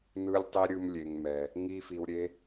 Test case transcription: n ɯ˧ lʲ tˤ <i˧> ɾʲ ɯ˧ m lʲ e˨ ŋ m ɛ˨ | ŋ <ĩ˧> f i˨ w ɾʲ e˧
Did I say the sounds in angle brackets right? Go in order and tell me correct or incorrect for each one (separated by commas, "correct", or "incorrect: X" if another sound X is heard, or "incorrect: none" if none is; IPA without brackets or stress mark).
correct, incorrect: i˧